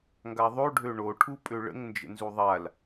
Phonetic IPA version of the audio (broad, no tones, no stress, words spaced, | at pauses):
ŋɡaðˤoɖʱø ɳoʈʰu pʼøɭə̰ŋ nd͡ʒə̰nzuðˤal